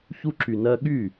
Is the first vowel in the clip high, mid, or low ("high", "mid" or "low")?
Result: high